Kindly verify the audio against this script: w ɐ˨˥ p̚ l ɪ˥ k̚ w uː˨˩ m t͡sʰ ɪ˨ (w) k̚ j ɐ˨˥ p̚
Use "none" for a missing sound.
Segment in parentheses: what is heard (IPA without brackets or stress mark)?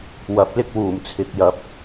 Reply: none